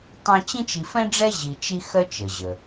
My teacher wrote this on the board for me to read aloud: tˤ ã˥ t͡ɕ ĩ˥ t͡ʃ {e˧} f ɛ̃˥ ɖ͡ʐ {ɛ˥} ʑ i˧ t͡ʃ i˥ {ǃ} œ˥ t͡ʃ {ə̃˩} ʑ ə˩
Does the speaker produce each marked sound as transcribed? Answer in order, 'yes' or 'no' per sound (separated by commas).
no, yes, no, no